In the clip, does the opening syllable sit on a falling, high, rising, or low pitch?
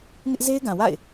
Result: high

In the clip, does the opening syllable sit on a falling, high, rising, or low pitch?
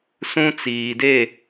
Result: high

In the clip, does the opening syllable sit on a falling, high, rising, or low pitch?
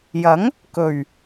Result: rising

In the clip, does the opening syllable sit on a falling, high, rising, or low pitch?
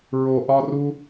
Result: low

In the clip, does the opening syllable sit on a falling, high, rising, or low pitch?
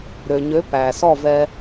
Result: low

